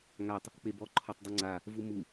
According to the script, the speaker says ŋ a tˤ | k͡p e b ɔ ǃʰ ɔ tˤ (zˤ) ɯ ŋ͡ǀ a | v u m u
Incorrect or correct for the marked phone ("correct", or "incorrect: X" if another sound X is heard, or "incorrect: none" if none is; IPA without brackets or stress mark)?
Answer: incorrect: dˤ